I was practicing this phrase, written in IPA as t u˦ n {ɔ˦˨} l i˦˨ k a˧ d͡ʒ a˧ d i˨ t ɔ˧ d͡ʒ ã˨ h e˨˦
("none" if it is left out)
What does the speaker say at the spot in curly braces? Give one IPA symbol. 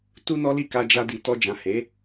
ɔ˦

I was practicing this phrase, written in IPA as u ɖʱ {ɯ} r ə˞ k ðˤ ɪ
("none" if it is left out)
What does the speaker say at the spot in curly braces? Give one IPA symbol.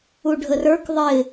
ə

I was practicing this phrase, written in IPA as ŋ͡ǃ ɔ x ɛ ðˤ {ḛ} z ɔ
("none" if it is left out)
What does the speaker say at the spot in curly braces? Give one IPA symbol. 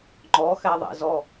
ḛ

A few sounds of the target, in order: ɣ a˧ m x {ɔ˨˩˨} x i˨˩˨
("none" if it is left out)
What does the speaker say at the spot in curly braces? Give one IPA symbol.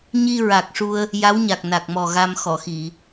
ɔ˨˩˨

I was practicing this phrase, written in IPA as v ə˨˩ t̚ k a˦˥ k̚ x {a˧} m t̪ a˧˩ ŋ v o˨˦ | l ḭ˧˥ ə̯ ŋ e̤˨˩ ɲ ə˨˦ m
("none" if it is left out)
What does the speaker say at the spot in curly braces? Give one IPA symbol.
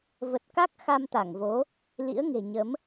a˧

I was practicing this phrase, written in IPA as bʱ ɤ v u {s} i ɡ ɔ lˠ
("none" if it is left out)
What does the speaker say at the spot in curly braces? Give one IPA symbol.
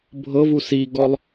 s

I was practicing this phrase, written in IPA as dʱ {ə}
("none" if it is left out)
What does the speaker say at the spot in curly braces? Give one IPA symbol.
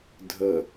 ə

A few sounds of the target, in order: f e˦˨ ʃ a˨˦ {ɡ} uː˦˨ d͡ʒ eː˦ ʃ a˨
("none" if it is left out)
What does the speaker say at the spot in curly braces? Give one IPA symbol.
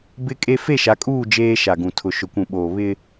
kʼ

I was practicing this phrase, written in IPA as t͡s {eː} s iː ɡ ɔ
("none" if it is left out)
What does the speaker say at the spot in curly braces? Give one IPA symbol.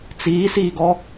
iː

